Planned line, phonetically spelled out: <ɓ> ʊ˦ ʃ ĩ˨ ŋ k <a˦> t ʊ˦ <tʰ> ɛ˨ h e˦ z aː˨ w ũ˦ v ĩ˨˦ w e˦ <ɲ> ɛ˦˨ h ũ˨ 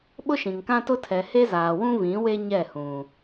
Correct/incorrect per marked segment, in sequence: correct, incorrect: ã˦, correct, correct

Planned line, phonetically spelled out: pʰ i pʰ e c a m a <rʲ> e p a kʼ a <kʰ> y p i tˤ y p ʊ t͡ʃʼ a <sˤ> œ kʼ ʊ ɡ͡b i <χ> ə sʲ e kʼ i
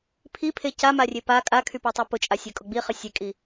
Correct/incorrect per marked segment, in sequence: correct, correct, incorrect: sʲ, correct

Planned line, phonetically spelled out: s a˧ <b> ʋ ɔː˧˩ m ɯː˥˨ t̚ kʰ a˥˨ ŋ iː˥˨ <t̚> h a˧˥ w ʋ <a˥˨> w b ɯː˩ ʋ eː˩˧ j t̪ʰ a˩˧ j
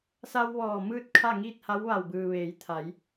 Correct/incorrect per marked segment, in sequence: incorrect: w, correct, incorrect: a˧˩

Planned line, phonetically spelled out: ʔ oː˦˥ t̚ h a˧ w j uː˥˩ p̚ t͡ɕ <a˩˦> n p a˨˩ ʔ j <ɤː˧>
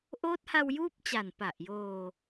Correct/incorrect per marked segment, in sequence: incorrect: a˨˩, incorrect: oː˧

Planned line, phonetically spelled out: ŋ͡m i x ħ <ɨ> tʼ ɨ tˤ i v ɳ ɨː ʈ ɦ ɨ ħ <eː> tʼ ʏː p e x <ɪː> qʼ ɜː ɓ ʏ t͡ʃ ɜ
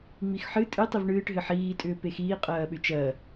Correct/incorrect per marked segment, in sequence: correct, incorrect: iː, incorrect: iː

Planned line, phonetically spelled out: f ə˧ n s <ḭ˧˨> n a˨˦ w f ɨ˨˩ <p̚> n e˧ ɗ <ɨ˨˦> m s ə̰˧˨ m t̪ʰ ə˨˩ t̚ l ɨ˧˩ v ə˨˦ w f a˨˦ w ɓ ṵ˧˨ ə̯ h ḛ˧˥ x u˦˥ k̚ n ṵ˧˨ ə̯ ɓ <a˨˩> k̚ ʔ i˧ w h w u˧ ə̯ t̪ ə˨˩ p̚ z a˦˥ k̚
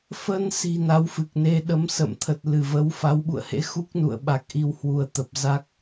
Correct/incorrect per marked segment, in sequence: incorrect: i̤˨˩, incorrect: k̚, incorrect: ə˨˦, correct

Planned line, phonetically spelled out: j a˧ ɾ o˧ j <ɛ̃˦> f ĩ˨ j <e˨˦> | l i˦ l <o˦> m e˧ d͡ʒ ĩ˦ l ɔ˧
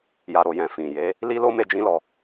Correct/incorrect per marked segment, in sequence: incorrect: ɛ̃˨, correct, correct

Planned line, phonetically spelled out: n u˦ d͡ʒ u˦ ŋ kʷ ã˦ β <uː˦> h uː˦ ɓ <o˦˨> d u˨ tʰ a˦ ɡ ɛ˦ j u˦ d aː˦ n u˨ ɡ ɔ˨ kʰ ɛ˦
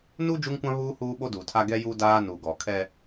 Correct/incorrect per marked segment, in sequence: correct, incorrect: o˦

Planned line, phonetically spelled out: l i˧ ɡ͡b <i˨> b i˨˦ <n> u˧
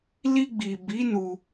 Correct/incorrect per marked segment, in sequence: correct, correct

